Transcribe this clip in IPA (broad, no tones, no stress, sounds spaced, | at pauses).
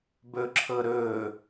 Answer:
b ɵː ǁʰ ɤ ɾ ɵː